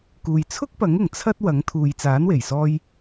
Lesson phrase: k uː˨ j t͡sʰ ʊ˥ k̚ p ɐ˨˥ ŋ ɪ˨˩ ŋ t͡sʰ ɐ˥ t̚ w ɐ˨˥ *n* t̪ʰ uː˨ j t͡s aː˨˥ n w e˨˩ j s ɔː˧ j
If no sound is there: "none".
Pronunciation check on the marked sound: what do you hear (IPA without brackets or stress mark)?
ŋ